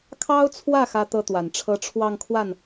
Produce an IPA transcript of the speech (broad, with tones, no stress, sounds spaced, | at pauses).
kʰ ɑ˥ ʊ̯ t͡sʰ w ä˥˩ x ä˥ t̪ ɤ˥ t̪ w a˨˩ n ʈ͡ʂʰ ɤ˥ ʈ͡ʂʰ w ɑ˥˧ ŋ kʰ w a˥˩ n